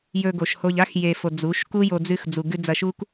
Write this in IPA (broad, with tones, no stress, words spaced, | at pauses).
jɵ˧ɡo˨ʃ ho˧ʎa˦x je˨fo˨ d͡zu˨˦ʃ ku˦jo˧ d͡zʉ˧x d͡zu˨ ɡʉ˧ d͡zɐ˧ʃu˦k